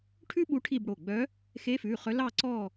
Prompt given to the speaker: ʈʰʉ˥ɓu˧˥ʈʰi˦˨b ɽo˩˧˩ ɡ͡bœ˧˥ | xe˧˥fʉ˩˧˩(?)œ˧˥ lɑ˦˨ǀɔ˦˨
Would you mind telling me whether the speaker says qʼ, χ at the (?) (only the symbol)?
χ